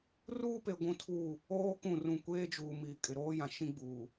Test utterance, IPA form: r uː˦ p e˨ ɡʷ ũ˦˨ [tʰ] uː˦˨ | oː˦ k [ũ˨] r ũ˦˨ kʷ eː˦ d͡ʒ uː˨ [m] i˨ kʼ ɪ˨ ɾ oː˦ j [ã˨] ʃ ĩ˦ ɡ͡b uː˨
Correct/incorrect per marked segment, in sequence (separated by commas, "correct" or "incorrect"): correct, incorrect, correct, correct